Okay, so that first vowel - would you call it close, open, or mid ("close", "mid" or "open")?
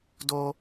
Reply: mid